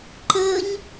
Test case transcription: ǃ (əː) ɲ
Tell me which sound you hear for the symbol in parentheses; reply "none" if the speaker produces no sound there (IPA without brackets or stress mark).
əː